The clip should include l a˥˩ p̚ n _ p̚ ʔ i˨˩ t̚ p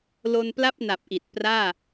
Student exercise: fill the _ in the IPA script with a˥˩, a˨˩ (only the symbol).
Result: a˨˩